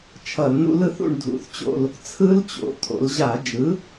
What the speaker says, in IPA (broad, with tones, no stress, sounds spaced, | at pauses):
t͡ʃʰ ʌ˧˩˧ l n ṵ˦˥ l ɯ˩˧ θ ṵ˦˨ ɳ dʱ ṵ˩˥ θ t͡ɕ o̰˦˨ l | t͡sʰ ɯ˦˥ l t͡ɕ o̰˩˥ t̪ʰ o̰˩˧ l ʑ a˧˩˧ d͡ʒ ɯ˩˥